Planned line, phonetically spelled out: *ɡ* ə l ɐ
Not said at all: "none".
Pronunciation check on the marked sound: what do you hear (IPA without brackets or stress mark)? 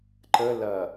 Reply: ǃ